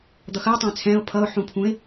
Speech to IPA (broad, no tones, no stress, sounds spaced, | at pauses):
d̪ ʌ x əː tˤ ɛ̃ː t͡sʰ ɛ̃ː ʊ̯ pʰ ʌ ʊ̯ ħ ũ pʰ ũ ɪ̯